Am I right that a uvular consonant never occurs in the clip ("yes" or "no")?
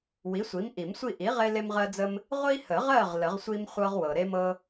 no